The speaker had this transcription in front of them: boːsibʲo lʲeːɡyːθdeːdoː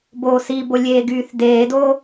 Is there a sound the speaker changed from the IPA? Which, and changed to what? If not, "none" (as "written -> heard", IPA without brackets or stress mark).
bʲ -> b